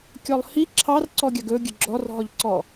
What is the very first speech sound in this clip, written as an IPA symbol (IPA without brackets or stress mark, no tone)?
kʲ